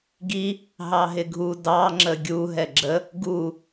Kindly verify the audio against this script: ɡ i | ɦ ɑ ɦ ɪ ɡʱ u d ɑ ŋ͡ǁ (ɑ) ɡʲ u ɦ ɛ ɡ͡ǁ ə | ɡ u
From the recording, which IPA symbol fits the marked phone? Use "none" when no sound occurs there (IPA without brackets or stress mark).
ə